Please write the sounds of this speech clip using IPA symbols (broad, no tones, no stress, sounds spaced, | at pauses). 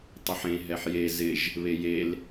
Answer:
tˤ ɪ ħ ẽ ɦ ɛ ħ j e z ɪ ʒ | β e j e l